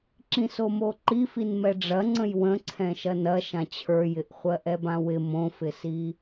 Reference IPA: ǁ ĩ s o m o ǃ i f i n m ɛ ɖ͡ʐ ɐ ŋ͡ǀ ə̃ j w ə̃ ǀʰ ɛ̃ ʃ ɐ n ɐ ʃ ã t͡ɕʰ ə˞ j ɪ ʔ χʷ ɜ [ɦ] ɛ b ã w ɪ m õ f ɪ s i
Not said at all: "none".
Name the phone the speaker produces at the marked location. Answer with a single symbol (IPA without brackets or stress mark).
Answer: ʔ